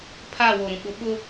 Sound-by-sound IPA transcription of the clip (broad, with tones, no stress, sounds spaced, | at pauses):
pʰ aː˦˨ w o˨ ɾ ũ˨ ɓ ʊ˨˦ ɓ ʊ˦